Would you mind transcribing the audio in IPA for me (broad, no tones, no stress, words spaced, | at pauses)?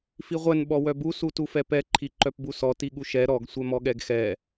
fiʁʷɛn ɓɔwœbu sutufɛpɛ ǃʰiǃœpbusɔ tiɠuʃɛ ɾɔɡ sʷɛmɔɠɛɡxɛ